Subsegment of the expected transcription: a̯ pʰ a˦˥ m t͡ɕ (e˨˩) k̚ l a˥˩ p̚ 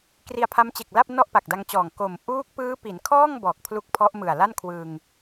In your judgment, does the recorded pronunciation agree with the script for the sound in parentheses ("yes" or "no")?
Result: yes